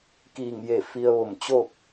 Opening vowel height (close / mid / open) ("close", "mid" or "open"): close